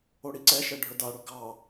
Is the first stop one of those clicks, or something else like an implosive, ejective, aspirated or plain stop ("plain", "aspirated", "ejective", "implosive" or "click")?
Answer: click